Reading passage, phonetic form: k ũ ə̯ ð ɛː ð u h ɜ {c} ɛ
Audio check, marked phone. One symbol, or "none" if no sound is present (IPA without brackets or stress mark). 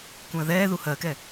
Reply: k